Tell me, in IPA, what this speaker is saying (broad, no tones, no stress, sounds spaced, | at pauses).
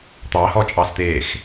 t̪ ɑ h ɔ t͡ʃʼ ɑ s t̪ eː x